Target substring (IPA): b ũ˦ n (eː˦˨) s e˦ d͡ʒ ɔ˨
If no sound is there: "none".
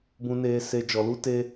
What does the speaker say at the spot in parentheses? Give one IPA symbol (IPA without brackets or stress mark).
eː˦